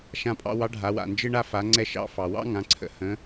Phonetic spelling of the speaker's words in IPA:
ʃ ã˧ pʼ ɑ̰˧ w ɑ˧˥ ɖʱ a˩˧ w a̰˩ n d͡ʒ ɨ˧ ɳ a˧ f a˩˧ ŋ͡ǀ ɛ˧ ʃ ɑ̰˧ f ɑ˩ w ɑ̰˥ ŋ ã˩˧ ǀʰ ə̰˩˧ h ə̃˩˧

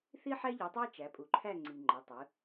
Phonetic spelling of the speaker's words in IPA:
θ i˥ ħ æ˥ ʎ ɯ˩˧ tˤ æ˥ t͡ʃ æ˩˧ pʼ u˩˧ ǃʰ æ˥˨ ŋ͡ǀ i˩ ŋ͡ǃ ɑ˩˧ tˤ ɯ˩˧

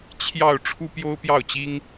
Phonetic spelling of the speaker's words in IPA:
t͡ɕʰ j ɑ˥˩ ʊ̯ ʈ͡ʂʰ u˥ p j o˥ ʊ̯ p j ɑ˥˩ ʊ̯ t͡ɕ i˥ ŋ

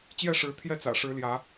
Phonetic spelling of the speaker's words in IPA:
t͡ɕ j ɛ˥˨ ʂ ɻ̩˨˦ t̪ʰ j ɛ˦ t͡s ä̰˨˩ ʂ ɻ̩˨˦ l j ä˨˦

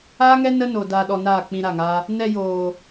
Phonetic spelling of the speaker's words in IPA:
aː˦ ŋ ɛ˦ n ə˦ n o˨ d aː˨ ɗ ɔ˨ n aː˦˨ k͡p ĩ˧ ɾ a˦˨ ŋ a˦ | n ɛ˧ j oː˨

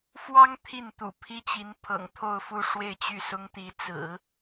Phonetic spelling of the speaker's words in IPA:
f w ɑ˥ ŋ t̪ʰ i˥˩ n t̪ ṵ˨˩ pʰ i˥ t͡ɕ i˧˥ n pʰ ɤ̰˨˩ ŋ t̪ʰ o˥˧ ʊ̯ f u˥˧ ʂ w e˥˧ ɪ̯ t͡ɕ y˥˩ s ʊ˥ ŋ t̪ i˧˥ t͡s ɹ̩˨˩˦

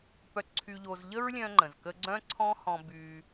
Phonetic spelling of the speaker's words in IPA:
p œ˨ ǀʰ y˨ ʎ o˨ z ʎ ə˧ ɹ lʲ œ̃˦ ŋ͡ǃ ə̃˨ z k ə˧ ɡ͡ǀ œ̃˦ ǀʰ ɔ̃˦ h ɔ̃˧ b y˧

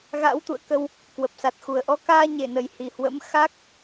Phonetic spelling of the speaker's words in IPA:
ɣ a̰˧˥ w t̪ ṵ˧˨ ə̯ k ə˧ w | k w ə˨˩ p̚ s a˨˩ t̚ x u˨˩ ə̯ ʔ ɔ˨˦ k aː˧ ɲ e˧˩ n ə˨˩ j h i˨˩ h w ə̰˧˥ m x a˦˥ k̚

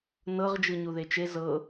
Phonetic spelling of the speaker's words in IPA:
n ɤ ʁ d͡ʒ ɯ ɲ u ð e t͡ʃ e z ɤ

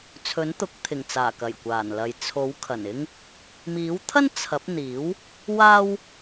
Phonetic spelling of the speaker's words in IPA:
t͡sʰ ɵ˨˥ n t̪ ʊ˨˥ k̚ t̪ʰ ɪ˨˩ ŋ t͡s aː˨˩ k ɐ˨˩ j kʷ aː˨˩ n l ɐ˨ j t͡sʰ o˨˥ w kʰ ɐ˨˩ n ɪ˥ ŋ | m iː˨˥ w t̪ʰ ɐ˥ n t͡sʰ ɐ˨˥ p̚ n̪ iː˨˥ w | w aː˥ w

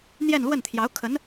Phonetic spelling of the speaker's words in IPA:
n̪ j ɛ˥˧ n l w ə˥˩ n t̪ʰ j ɑ˧˥ ʊ̯ kʰ ə˧˥ n

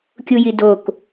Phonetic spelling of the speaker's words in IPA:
kʲ u j i d o k

